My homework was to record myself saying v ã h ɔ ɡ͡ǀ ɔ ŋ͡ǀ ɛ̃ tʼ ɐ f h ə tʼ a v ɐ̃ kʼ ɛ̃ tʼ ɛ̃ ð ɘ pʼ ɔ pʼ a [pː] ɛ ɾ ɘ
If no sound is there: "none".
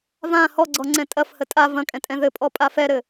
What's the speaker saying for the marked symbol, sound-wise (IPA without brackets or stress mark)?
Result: f